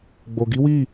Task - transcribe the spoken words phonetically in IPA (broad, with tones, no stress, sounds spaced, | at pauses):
ɡ͡b o˨ ɡ i˨˦ w i˦˨